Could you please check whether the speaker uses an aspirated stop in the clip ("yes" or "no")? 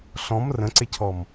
yes